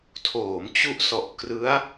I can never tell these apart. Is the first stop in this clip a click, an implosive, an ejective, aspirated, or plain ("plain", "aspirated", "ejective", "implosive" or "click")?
aspirated